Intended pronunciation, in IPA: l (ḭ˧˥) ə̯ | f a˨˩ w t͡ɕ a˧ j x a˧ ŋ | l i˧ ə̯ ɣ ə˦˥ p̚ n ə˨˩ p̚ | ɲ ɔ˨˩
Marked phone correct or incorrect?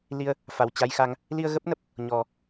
incorrect